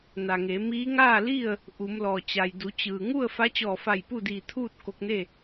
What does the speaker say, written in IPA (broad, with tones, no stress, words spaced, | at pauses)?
na˩ŋe˩˧ mi˧˥ ŋaː˥˨li˥˨ə̯ | ʔu˩˧mlɔː˩ t͡ɕa˩jdu˩˧t͡ɕɯː˩ ŋu˥˨ə̯ fa˧˥t͡ɕɔː˧˩fa˧˩j pu˥˨diː˧˩t̪ʰuː˥˨t̚ ko˧k̚ne˥˨